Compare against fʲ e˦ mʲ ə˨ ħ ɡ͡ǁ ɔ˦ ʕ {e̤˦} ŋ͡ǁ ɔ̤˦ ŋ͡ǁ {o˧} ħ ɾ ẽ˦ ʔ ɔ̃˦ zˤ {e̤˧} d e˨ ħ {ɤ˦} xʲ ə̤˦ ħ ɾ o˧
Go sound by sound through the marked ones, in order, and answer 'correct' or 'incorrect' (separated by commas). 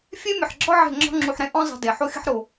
incorrect, incorrect, correct, incorrect